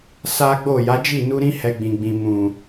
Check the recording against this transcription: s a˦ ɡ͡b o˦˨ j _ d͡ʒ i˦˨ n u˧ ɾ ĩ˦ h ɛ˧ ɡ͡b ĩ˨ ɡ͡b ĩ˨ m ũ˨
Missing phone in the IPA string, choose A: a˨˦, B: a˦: A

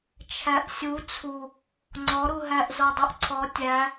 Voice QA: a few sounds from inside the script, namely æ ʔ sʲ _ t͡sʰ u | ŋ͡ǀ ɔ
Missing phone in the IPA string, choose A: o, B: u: B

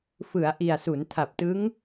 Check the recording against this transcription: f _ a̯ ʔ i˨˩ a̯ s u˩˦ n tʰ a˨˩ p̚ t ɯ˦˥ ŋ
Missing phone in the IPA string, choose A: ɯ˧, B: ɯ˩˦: B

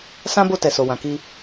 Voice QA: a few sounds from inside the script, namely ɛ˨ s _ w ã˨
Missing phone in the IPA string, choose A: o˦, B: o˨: B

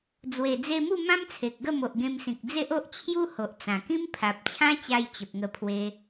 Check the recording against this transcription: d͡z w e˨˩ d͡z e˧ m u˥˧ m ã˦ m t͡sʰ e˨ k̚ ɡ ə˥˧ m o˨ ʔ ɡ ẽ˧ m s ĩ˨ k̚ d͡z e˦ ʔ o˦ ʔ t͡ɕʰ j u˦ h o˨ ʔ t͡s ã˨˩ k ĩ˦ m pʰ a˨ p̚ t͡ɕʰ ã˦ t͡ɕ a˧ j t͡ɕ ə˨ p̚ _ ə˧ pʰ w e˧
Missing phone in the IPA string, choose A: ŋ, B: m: A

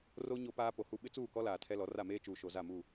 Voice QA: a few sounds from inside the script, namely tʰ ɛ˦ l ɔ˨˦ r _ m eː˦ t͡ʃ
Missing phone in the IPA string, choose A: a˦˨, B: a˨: A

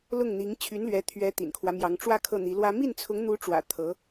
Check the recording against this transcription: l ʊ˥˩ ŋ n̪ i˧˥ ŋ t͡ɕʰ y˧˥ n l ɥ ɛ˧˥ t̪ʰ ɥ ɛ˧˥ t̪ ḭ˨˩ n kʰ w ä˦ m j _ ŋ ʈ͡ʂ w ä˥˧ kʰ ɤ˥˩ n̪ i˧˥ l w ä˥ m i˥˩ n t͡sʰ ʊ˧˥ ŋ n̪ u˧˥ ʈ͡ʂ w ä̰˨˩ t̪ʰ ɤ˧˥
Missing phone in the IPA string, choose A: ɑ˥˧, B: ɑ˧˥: B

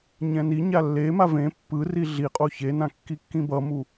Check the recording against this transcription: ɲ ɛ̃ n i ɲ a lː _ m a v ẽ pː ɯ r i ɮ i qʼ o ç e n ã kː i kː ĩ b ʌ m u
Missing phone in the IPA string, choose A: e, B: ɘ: A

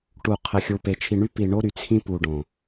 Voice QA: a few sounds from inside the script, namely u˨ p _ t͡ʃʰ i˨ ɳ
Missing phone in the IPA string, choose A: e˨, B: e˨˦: A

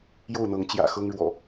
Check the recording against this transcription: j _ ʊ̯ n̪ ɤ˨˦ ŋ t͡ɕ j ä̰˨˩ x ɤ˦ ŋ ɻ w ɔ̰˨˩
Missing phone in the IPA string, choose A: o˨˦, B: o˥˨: B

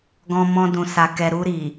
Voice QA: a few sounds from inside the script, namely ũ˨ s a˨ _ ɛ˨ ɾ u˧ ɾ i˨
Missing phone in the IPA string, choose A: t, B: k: B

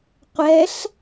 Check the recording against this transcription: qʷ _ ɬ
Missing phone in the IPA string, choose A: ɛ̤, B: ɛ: B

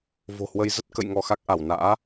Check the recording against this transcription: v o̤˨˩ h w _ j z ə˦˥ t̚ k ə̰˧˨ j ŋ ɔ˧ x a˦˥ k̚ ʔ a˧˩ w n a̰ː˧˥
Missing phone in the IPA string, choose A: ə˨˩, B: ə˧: B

